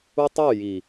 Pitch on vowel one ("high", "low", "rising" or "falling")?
high